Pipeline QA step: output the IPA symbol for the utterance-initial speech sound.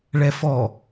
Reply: ɭ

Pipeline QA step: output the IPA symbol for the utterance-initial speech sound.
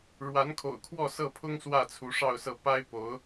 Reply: ɻ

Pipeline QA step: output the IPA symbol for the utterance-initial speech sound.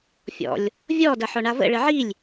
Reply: fʲ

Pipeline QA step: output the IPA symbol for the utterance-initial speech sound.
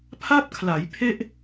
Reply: pʰ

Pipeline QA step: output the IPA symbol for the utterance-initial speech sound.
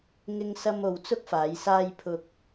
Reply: ŋ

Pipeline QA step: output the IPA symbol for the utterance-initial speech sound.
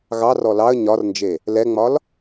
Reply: ɣ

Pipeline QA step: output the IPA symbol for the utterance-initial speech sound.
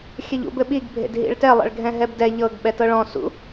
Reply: xʲ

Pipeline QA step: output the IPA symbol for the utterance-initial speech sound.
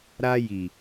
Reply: ɾ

